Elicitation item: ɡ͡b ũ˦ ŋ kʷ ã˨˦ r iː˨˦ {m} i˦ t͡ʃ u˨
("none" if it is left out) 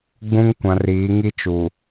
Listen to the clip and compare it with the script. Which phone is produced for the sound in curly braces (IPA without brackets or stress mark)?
ŋ